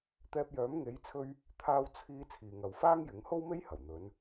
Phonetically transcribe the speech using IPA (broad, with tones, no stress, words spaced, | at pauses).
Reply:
t̪ɛː˧p̚jœː˨˥m ŋe˨˥jt͡sʰɵ˧ɥ | t̪ʰaː˧w t͡sʰiː˧ t͡sʰiː˨ŋɐ˨wfaː˥ŋ jɪ˨˥ŋ ho˥wme˥j hɐ˨˩wn̪ɵ˨˧n